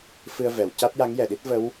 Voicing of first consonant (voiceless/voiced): voiceless